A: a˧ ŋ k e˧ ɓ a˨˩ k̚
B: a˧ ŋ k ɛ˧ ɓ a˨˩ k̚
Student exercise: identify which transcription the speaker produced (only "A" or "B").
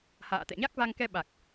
B